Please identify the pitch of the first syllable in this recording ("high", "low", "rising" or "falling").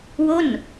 falling